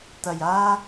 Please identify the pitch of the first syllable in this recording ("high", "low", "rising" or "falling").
low